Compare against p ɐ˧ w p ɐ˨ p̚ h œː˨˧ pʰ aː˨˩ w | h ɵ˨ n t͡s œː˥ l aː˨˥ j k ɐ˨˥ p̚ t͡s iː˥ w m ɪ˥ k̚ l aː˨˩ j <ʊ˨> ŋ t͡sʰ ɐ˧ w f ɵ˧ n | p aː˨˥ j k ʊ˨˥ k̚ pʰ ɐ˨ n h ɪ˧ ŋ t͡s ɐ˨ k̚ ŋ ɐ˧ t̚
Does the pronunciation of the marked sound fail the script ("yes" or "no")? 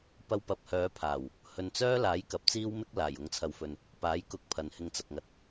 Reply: yes